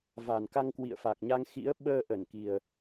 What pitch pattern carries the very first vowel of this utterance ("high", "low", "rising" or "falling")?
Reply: low